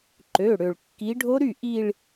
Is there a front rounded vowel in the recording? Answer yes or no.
yes